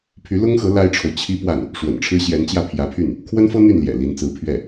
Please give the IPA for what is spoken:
pʰy˧˥lʊ˥ŋxɤ˧˥ la˥ɪ̯ʈ͡ʂʰo˨ʊ̯ t͡ɕʰi˥pwa˥˩n | ʂwə̰˨˩nʈ͡ʂʰɻ̩˥ɕjɛ˧˥nt͡ɕjä˥˩ pʰjä˧˥pʰy˥˩n | kʰwə˥nfɤ˥ n̪y˥˩nljɛ̰˨˩ li˧˥nt͡sɹ̩˧˥pʰɥɛ˥˩

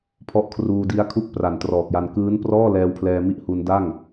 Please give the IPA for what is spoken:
pʰɔ˦˥ʔkʰruː˧di˦˥a̯kʰu˥˩k̚ pra˨˩ntrɔː˨˩k̚ja˧n kɯː˦˥n prɔː˥˩lɛː˧wpʰlɛː˧ mi˦˥ʔhu˧nda˥˩ŋ

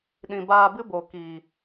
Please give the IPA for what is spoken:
ɗĩ˨baː˧bɨ˦bo˨ ki˨

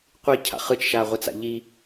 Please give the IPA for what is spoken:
qʷicʰa̰ χɯt͡ʃʃaːʁʷɯt͡sa̰ ʎi

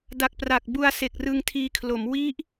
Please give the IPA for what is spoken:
da˨˩k̚pra˨˩k̚ bu˧a̯se˨˩k̚ rɯ˧ŋtʰiː˧kʰlo˩˦m wi˦˥ʔ

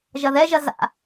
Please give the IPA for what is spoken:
ʒɐðɛʒɐ za̰

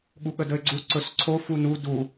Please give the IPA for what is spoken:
ɠuɠədəɪ̯ɡ͡ǀu ǀɵsǀʰo funu du

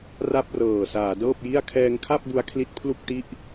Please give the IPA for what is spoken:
ra˥˩p̚rɤː˨˩ saː˩˦dɤː˥˩p̚ji˥˩a̯ kʰɛː˧ŋkʰa˥˩p̚ bu˦˥a̯kʰli˦˥t̚pʰlu˥˩k̚ti˥˩ʔ

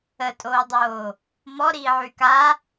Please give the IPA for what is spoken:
ətʼoːdˤoː | mɔɾiːʕy ka

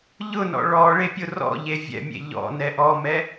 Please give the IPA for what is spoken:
ʎʊnɔ̰ ɭɔ ɭepʲʊrɔ̰ʎe vʲɛ̰mʲḛ ʎɔ̰nɛ ʔɔmɛ

